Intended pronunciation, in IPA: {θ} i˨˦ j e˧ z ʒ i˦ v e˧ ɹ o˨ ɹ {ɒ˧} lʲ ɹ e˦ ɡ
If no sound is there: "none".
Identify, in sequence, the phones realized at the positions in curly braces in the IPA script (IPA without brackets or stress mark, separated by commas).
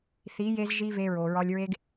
θ, ɒ˧